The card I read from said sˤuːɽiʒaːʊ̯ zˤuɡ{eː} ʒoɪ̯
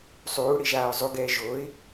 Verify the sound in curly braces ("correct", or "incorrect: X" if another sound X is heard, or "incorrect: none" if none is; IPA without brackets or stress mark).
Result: incorrect: ɛː